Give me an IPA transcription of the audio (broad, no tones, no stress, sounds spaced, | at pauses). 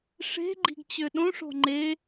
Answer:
ʂ e̤ ɡ͡ǃ i̤ ɡ t͡ɕ ø ɗ õ ʂ o̤ ŋ͡ǃ e